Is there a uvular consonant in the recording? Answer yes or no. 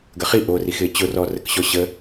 yes